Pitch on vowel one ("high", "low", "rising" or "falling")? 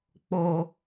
low